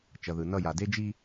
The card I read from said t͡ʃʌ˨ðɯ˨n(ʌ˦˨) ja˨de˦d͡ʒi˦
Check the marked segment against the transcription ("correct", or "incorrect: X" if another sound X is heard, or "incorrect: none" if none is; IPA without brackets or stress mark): correct